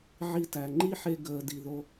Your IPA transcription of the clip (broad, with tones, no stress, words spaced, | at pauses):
ʕi˧tæ˨ŋ͡ǃi˦ħe˧ ɡəː˨ di˨ðo˧